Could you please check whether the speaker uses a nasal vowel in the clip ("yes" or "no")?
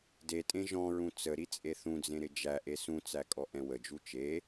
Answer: yes